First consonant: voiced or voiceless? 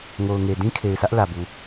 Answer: voiced